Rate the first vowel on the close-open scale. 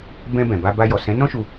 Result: mid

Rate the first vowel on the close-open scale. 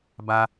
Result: open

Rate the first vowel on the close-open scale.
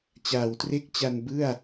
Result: open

